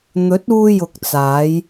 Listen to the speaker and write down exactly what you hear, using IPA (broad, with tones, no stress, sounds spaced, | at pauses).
n̪ ɵ˨˥ t̚ uː˧ j ʊ˨ k̚ t͡s aː˨˧ j